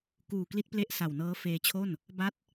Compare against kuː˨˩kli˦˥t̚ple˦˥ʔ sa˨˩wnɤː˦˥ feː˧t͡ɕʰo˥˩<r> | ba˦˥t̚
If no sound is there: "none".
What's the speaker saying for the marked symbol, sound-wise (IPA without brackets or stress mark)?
n